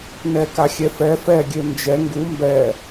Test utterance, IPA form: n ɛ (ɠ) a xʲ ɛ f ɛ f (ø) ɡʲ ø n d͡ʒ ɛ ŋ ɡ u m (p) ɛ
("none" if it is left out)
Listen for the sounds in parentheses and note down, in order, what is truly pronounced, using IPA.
k, ɛ, b

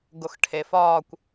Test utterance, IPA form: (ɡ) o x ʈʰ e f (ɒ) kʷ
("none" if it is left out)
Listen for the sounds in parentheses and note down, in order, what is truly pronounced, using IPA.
ɡ, ɒː

